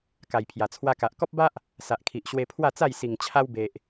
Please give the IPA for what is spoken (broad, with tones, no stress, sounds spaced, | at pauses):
k a˨˩ j pʰ j a˨˩ t͡sʰ w a˧ k a˨ ʔ k ɔ˦ p̚ b a˦ ʔ | s a˨ ʔ kʰ i˨ ʔ ɕ w e˧ pʰ w a˥˧ t͡s a˥˧ j s i˨˩ ŋ t͡ɕʰ a˧ w b e˨ ʔ